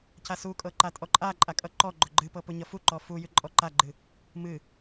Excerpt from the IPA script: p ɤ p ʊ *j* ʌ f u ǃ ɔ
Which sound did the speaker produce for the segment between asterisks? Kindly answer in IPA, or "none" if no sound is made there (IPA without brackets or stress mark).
ɲ